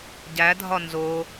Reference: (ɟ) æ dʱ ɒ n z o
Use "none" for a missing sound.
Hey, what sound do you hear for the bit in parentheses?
ɟ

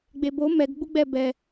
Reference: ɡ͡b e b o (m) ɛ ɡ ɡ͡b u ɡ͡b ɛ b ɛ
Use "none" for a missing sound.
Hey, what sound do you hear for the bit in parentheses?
m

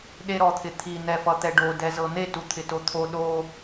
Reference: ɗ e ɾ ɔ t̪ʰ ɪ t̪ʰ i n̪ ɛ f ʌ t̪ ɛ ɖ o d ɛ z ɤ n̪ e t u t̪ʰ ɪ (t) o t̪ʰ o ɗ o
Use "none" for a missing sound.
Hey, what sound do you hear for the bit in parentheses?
t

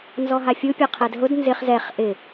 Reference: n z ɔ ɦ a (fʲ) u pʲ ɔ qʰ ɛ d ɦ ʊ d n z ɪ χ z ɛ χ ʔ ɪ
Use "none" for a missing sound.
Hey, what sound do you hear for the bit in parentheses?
fʲ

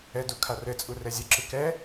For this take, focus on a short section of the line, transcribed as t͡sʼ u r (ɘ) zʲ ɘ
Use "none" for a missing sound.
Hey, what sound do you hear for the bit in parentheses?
ɛ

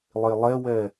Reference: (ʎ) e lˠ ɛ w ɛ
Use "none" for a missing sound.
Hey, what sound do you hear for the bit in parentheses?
lˠ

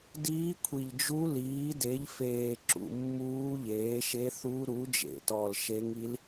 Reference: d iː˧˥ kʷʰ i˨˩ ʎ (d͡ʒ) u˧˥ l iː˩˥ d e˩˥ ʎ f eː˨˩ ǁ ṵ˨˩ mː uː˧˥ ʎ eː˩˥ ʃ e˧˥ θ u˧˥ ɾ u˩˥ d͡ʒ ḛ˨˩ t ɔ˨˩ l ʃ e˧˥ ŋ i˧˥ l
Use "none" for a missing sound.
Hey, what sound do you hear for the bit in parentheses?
d͡ʒ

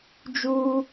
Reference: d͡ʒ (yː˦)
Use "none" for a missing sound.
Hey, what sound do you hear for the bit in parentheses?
uː˦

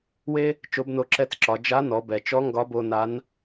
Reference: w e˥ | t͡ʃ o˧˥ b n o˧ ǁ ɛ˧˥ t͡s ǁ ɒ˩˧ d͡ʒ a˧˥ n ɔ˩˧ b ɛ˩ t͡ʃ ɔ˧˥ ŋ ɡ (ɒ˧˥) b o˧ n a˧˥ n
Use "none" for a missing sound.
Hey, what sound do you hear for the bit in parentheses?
ɒ˧˥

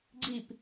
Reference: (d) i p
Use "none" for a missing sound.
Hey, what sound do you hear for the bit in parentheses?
ɡ͡ǀ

